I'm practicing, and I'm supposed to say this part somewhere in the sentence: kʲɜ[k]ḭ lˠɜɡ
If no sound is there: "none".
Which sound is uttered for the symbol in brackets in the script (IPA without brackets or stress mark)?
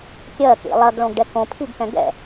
k